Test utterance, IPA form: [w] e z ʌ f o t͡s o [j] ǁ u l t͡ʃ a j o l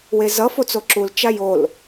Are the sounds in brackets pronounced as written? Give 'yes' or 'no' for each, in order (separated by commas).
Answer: yes, no